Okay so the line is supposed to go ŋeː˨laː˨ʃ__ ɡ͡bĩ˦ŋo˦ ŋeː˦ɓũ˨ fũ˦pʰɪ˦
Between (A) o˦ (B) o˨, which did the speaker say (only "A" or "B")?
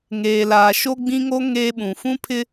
A